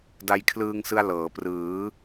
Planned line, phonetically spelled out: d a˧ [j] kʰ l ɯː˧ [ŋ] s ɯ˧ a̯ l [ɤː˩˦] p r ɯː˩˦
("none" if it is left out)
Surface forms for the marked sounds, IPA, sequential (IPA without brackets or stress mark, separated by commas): j, ŋ, ɤː˩˦